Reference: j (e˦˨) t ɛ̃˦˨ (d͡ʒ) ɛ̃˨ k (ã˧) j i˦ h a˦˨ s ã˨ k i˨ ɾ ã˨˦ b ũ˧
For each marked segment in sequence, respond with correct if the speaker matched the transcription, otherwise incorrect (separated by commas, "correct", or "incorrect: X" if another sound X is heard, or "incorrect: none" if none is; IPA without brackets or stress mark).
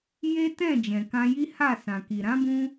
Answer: incorrect: e˦, correct, correct